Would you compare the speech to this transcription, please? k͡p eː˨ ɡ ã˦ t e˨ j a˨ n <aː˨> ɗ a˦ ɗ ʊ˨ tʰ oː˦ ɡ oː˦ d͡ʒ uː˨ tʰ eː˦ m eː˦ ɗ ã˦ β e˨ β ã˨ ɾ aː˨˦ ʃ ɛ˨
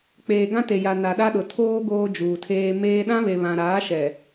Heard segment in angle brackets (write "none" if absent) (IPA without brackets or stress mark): a˨